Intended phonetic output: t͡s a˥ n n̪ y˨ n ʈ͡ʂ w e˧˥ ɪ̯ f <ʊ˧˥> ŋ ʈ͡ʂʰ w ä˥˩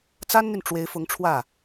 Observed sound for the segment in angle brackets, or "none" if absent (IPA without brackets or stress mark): ʊ˧˥